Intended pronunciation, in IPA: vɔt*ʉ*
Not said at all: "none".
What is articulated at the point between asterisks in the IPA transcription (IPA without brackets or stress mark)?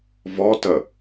ə